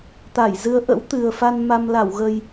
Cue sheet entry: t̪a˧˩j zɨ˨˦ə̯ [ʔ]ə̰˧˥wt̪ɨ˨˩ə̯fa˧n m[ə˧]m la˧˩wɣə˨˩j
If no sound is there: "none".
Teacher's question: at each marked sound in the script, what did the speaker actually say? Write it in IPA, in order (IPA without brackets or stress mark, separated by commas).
ʔ, a˧